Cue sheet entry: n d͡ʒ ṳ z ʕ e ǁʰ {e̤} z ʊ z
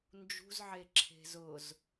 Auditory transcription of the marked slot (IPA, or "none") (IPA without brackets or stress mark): e̤